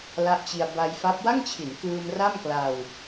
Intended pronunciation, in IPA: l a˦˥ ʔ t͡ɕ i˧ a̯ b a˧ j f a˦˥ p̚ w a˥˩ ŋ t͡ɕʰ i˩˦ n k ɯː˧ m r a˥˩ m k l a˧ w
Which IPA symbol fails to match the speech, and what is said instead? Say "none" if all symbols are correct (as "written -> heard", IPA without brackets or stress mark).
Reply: none